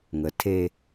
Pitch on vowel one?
low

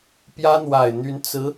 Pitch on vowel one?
high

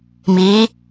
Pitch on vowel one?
rising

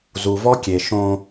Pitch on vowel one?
low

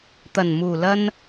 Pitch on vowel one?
low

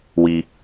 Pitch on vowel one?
low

